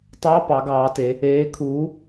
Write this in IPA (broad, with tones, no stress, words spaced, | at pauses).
tˤɑ˧˥˧pɑ˩˧ɡɑː˩˧te˩˧ | eː˨˥kʰuː˨˥